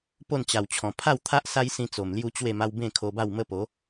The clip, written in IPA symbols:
p o˥˧ n t͡ɕ a˨˩ w t͡ɕʰ ɔ̃˨˩ pʰ a˥˧ w t̪ʰ a˦ ʔ s a˦ j s ĩ˧ t͡s o˨˩ m l j u˦ t͡ɕ w e˥˧ m a˦ w b ẽ˥˧ kʰ o˧ b a˥˧ w m ə˦ p o˨˦

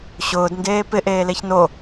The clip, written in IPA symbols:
ɕ ʊː d n d eː p ɪ ʔ eː l e ç n o

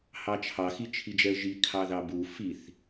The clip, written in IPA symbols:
h ɑ t͡ʃʰ ɑ x i t͡ʃʰ i d͡ʒ ɛ ə̯ ʒ i kʰ ɑ ð ɑ b u f i θ

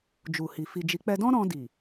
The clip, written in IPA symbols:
d͡ʒ u˨ h i˨ f i˨ d͡ʒ i˨˦ k͡p ɛ˧ d ɔ̃˦ ɾ ɔ̃˧ d i˨

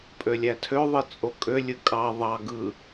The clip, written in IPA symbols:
pʼ ø lʲ æ tʰ ø ðˤ ɯ t͡sʼ o kʼ ø lʲ ɯ kʼ ɑ ðˤ ɑ ɡ ɯ

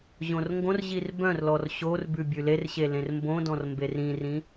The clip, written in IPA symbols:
ʑ õ r ŋ ɡ õ r ʑ i r b œ̃ r l ɔ r ɕ o r b ʉ bʲ ʉ l e r ɕ e l ẽ r m b õ d ɔ̃ r m b e r ĩ r ĩ

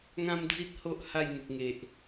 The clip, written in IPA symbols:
ŋ ã˦ m d͡z i˦ t̚ h o˦ ʔ h a˥˧ j n̪ u˨ k̚ ŋ e˨ ʔ

